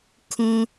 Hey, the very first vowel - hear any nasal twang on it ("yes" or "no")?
yes